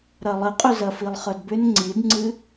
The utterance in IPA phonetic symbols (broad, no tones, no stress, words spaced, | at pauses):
ɾɐlˠəqʼʏzɐ filˠχœdbʏn ŋ͡ǀidŋ͡ǀɨ